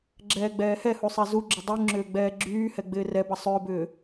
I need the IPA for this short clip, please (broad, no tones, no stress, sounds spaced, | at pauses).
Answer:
ɡ͡ǁ ɛː ɡ͡b ɛː h ɛ h u sˤ ɛ z u ɡ͡ǁ ʏ dˤ y ŋ͡ǁ ʏː ɡ͡b ɛː ɡ͡ǁ yː h ɛ ɡ͡b ɪː r ɛ b ɐ sˤ ʏː b ʏː